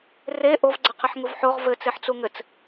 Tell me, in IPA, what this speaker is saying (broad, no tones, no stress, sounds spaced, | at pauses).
r e ʔ o v ɡ͡ǀ ɘ qʰ ɘ ħ ŋ u v ħ o ʁ v ɘ t͡s e ħ t͡s u ŋ ɘ t͡s